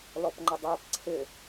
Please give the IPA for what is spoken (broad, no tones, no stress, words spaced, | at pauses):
lɔpŋ͡ǃədˤæp ǀʰɪ